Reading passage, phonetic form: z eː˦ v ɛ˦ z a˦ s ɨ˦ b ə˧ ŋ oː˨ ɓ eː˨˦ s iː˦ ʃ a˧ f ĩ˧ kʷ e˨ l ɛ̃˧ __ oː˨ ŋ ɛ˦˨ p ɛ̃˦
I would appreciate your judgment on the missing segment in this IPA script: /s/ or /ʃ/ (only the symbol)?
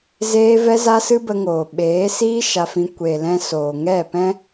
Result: s